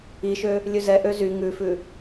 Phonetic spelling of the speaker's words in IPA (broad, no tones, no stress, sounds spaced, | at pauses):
i ʃ ø | lʲ ʉ z ɛ ʔ ø z y ŋ ʉ f ʉ